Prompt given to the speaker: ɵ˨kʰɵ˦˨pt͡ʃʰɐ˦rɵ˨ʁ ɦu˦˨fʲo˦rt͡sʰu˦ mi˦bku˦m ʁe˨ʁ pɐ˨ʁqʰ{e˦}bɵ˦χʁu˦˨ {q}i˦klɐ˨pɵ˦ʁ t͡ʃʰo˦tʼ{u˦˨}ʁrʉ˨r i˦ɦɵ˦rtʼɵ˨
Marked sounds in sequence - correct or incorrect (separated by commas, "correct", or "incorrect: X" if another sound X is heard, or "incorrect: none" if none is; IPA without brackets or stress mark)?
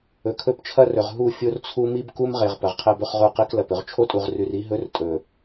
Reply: correct, correct, incorrect: u˨